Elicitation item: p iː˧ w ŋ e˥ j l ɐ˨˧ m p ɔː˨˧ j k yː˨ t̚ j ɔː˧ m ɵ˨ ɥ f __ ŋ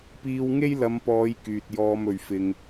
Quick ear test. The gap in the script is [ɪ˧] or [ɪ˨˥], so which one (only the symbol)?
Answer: ɪ˧